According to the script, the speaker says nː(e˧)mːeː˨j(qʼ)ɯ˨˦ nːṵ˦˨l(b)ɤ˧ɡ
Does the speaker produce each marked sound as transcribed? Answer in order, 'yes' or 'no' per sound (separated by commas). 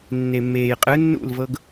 no, yes, no